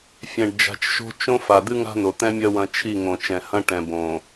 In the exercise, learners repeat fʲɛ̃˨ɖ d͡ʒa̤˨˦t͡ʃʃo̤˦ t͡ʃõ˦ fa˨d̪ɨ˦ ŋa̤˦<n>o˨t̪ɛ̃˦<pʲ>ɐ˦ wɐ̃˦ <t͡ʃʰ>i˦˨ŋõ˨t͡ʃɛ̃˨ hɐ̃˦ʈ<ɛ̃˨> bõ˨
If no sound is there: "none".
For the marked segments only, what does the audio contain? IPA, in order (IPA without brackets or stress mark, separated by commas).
n, mʲ, t͡ʃʰ, ɛ̃˨